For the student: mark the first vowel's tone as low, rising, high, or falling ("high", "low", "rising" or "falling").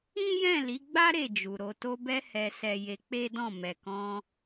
high